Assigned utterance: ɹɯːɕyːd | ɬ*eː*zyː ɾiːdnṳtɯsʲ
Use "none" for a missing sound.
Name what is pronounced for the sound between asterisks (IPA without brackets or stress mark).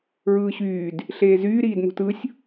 eː